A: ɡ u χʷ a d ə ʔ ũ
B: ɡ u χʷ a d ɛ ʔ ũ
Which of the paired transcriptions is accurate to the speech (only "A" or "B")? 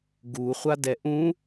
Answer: B